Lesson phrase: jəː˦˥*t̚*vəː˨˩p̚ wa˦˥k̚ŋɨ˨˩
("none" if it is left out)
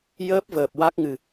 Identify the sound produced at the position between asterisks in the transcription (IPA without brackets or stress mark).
p̚